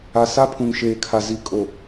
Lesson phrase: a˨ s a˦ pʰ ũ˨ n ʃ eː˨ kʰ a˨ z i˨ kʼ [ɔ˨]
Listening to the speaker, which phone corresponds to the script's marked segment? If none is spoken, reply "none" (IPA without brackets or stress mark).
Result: o˨